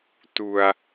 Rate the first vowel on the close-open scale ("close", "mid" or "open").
close